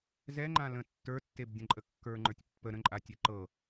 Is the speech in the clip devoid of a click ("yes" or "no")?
no